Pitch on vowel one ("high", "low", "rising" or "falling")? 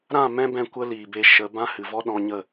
falling